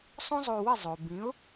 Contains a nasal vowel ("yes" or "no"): yes